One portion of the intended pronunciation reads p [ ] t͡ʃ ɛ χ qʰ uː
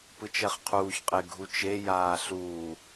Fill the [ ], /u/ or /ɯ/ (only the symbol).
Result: ɯ